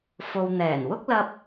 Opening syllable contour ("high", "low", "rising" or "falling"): low